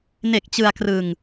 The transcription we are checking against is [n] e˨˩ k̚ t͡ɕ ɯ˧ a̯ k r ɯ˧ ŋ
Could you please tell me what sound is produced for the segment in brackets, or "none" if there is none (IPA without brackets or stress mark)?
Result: n